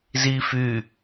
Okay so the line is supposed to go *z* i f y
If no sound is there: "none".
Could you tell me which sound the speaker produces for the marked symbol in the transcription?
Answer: z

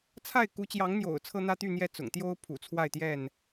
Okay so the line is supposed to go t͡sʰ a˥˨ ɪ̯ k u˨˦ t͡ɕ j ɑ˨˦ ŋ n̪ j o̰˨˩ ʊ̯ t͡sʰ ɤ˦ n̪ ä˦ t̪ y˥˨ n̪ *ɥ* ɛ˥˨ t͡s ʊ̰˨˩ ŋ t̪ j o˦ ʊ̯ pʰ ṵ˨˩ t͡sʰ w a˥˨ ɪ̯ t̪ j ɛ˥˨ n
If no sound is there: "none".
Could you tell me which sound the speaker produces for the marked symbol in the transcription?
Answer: j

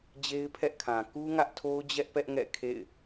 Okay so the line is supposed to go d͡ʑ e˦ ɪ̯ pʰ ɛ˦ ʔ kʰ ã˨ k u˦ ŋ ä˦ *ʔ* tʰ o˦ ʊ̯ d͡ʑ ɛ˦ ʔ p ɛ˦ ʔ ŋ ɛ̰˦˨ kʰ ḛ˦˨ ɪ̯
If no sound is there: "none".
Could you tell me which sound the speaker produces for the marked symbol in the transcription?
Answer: ʔ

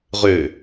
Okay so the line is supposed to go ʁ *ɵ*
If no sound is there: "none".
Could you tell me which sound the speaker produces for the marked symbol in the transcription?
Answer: ø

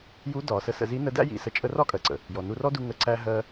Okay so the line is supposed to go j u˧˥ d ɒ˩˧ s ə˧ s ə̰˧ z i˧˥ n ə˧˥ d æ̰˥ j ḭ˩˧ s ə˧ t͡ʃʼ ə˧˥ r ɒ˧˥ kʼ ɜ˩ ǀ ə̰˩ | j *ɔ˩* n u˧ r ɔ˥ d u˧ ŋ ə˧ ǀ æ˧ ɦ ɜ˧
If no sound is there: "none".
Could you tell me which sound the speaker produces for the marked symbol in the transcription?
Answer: ɔ˩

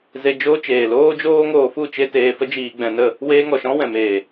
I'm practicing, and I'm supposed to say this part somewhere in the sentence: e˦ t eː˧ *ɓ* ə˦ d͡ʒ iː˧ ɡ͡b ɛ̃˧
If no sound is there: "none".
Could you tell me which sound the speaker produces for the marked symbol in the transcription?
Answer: f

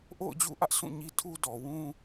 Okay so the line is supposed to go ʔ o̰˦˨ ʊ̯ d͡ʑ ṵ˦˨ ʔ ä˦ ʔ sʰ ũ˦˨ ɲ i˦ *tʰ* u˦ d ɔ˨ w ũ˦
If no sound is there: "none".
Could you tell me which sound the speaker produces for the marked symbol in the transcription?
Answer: tʰ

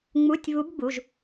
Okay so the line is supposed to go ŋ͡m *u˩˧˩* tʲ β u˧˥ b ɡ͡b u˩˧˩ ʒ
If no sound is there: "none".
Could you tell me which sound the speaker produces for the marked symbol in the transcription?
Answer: u˧˥˧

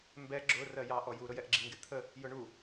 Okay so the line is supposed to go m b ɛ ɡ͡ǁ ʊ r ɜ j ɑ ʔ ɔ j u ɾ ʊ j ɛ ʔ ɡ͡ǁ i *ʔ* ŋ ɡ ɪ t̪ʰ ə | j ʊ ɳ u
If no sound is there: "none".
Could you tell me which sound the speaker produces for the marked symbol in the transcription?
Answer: none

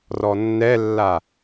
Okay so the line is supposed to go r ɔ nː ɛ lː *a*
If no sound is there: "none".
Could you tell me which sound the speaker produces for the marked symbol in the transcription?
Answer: a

